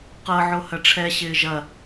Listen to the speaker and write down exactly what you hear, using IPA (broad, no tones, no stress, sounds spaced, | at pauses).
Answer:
q ɤ ʕ o h ɐ ʈ͡ʂʰ ɛ ɕ ɪː ʒ ɐ